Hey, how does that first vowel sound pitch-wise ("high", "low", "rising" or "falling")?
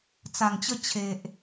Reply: low